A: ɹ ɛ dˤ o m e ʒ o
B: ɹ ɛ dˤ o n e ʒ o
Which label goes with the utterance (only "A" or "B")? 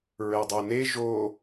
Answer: B